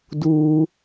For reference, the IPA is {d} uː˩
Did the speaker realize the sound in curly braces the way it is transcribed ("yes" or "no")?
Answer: yes